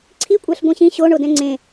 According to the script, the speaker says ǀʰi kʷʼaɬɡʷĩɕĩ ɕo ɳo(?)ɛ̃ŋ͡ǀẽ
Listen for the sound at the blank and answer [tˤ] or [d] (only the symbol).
d